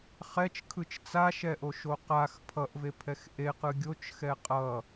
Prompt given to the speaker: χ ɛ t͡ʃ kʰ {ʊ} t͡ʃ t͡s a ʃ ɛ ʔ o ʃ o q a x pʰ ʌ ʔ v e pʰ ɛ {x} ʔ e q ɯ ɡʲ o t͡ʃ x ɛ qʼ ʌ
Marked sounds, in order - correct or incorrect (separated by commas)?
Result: incorrect, correct